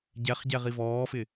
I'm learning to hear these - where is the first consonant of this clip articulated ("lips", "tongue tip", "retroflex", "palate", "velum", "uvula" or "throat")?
palate